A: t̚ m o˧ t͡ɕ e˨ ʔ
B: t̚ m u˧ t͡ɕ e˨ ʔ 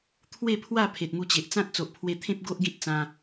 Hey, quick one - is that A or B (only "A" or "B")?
B